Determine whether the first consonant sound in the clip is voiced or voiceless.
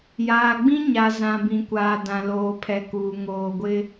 voiced